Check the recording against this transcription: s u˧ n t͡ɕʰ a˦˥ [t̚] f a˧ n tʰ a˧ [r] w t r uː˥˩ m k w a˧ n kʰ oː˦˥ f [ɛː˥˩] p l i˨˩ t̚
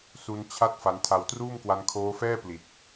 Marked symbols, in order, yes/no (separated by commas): yes, no, yes